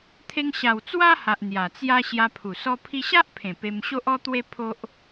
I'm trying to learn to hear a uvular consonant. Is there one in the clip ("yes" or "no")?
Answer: no